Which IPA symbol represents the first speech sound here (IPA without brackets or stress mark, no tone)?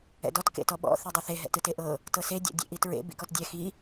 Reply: ɛ̰